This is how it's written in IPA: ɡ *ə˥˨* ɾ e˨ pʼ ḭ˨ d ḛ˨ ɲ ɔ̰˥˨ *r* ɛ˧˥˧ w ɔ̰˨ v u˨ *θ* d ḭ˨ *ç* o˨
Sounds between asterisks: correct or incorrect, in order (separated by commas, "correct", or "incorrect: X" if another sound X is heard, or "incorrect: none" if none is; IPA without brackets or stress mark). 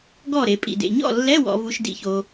incorrect: ɔ˥˨, incorrect: lː, incorrect: ʃ, correct